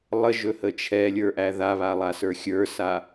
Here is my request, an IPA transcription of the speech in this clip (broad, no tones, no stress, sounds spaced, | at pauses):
lˠ ə ʒ ɵ h ə t͡ʃʰ ɛ lʲ ə˞ ʔ æ ð a β a lˠ a s ə˞ xʲ ə˞ s a